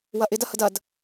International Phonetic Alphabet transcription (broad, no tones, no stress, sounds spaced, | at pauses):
w ɐ ʔ ɪ d ɐ h ə d ɐ d